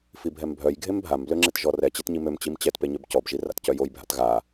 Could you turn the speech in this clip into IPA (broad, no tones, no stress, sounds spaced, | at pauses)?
f i bʱ ɛ m bʱ œ j ɡʱ e m bʱ a m b l ø ŋ͡ǁ e t ʒ ɔ r ɛ t͡ɕ e t ɲ i m ø m t͡ɕ i m t͡ɕ ɛ t p e ɲ ø b c ɔ b ʒ i r a̰ t c œ j o j bʱ a̰ t ɣ a